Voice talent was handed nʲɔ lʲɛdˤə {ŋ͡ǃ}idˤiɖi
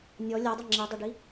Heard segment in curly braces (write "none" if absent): ŋ͡ǁ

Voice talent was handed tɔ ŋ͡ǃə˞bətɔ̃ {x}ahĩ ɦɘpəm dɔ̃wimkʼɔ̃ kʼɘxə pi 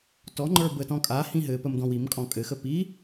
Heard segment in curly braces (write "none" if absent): kʼ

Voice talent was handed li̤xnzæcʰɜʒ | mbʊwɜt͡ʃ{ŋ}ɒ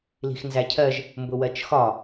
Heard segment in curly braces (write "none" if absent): x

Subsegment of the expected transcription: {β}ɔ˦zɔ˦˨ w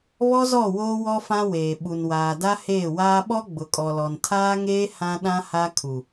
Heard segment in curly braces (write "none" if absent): β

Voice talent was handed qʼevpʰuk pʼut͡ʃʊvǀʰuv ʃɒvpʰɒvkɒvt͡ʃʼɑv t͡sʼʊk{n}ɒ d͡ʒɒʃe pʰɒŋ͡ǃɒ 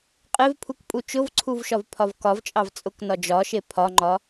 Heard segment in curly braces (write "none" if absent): n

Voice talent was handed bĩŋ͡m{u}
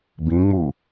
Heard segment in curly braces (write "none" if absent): u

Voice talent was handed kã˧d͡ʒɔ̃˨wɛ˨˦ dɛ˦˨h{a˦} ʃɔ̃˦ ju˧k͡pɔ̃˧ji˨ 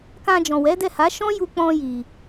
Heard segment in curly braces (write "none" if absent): a˨˦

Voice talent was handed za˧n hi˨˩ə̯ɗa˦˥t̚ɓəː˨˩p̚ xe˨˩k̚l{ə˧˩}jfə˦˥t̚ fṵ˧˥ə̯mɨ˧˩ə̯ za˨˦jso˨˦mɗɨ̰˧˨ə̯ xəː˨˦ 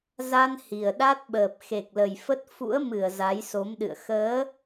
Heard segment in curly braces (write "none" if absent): ə˨˩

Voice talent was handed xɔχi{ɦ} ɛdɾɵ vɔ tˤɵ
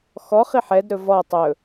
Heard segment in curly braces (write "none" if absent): ħ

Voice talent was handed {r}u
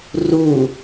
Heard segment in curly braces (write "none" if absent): r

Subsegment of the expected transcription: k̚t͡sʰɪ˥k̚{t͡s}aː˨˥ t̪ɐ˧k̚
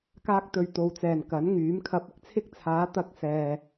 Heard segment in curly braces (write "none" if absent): t͡sʰ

